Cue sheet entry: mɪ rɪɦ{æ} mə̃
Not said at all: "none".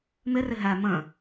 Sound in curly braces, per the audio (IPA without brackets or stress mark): æ